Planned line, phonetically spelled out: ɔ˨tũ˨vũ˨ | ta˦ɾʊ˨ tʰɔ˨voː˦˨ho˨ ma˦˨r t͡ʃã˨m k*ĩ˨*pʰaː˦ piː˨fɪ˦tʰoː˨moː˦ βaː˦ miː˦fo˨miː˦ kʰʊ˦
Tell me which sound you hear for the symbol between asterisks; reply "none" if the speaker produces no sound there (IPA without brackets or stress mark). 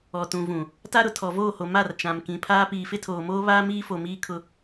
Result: ĩ˨